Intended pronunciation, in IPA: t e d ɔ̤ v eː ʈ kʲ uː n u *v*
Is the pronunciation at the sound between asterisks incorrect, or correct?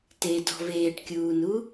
incorrect